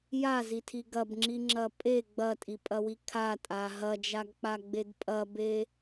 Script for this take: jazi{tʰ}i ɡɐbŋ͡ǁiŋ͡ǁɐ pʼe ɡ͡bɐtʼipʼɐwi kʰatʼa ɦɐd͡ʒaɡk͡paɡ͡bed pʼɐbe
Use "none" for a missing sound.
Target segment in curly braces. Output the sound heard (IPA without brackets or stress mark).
tʰ